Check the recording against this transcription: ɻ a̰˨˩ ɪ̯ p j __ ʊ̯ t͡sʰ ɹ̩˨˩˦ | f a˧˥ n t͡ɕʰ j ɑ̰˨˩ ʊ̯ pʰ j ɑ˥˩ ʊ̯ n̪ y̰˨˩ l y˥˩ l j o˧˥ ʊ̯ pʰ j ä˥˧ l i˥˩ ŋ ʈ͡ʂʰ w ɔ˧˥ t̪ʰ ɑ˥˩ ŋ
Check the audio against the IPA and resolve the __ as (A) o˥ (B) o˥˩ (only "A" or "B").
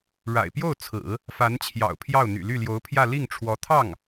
B